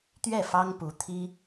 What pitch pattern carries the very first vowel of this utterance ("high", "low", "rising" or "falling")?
falling